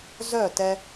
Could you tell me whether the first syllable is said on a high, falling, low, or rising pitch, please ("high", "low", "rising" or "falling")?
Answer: falling